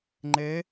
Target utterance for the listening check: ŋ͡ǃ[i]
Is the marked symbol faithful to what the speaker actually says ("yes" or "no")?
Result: no